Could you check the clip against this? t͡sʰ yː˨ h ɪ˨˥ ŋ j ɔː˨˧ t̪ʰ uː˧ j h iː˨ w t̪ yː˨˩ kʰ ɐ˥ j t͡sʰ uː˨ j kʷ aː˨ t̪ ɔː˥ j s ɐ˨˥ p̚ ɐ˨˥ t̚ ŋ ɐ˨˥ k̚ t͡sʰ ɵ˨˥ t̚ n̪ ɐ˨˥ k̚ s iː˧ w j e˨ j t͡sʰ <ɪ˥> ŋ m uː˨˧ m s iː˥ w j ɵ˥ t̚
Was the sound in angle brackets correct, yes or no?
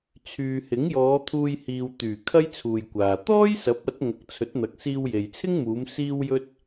yes